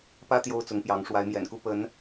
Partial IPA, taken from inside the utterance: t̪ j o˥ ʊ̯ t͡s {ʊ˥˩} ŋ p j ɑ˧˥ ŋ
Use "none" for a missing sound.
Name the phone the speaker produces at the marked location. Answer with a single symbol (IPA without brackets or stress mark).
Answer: ʊ˧˥